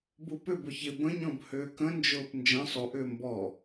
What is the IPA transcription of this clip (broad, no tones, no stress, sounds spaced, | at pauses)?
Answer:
b u p ʏ b ʊ ç ɪ b ə̃ ɲ ɔ̃ b h ʏː k ə̃ n d͡ʒ ʊː p n d͡ʒ ə̃ sˤ u ʔ ʏː m b ɔ